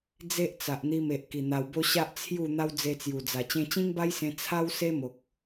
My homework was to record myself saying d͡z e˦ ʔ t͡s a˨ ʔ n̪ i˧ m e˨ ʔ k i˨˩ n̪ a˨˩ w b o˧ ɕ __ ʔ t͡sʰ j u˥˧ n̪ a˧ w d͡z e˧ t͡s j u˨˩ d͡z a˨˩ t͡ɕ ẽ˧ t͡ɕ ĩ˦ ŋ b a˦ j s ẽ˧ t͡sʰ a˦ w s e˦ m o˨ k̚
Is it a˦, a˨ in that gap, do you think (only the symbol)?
a˦